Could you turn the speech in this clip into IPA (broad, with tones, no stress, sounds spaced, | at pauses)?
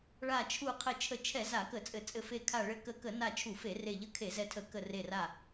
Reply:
ɭ a˧˩ t͡ʃʰ u˧˩ qʰ ɘ˧˩ t͡ʃʰ ə˧˩ t͡ʃʰ ɛ˧˩˧ z a˧˩˧ k ə˧˩˧ t͡sʼ ɘ˧˩˧ t͡sʼ ɘ˧˩ f e˧˩ kʰ a˧˩ ɭ ɘ˧˩ k ə˧˩ k ə˧˩˧ n a˧˩ t͡ʃʰ u˧˩˧ f e˧˩˧ r e˧˩ ʎ ə˧˩ kʰ e˧˩˧ z ɛ˧˩ tʰ ə˧˩˧ k ə˧˩ r e˧˩ r a˧˩